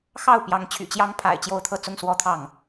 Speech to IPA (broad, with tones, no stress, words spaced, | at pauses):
xɑ˥˩ʊ̯ pjɑ˧˥ŋt͡ɕʰy̰˨˩t͡ɕjɑ˥ŋ pʰa̰˨˩ɪ̯ t͡ɕjo˥ʊ̯t̪ʰɤ˥˧t͡sʊ˥˧ŋ swɔ˥˧t̪ʰɑ˥˩ŋ